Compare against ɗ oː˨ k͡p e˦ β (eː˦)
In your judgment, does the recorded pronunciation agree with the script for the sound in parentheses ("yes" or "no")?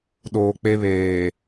no